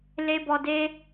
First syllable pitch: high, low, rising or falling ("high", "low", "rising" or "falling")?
high